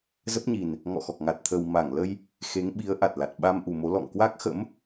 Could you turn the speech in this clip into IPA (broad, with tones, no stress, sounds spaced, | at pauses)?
z ə˦˥ p̚ ɲ i˨˩ n | ŋ ɔ̰˧˨ x ɔ˨˩ k̚ ŋ a˨˩ t̚ t̪ʰ ə˨˩ w m a˧˩ ŋ l ə˧ j | x e˨˦ ŋ ɓ i˨˦ ə̯ ʔ a˨˩ t̚ l a˨˩ t̚ ɓ a˧ m ʔ u˨˩ m o˨˦ l ɔ̰˧˨ ŋ k w a˦˥ k̚ x ə̰˧˥ m